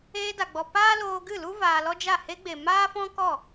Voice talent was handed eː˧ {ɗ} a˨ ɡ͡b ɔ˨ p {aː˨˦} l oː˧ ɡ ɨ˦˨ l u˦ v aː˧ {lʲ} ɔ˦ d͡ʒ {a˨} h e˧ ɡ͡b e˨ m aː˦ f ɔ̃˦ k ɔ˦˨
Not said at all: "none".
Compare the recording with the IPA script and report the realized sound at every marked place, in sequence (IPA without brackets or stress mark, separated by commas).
d, aː˦, l, a˦˨